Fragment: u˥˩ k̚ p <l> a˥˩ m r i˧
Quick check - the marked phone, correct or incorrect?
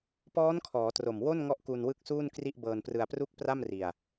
incorrect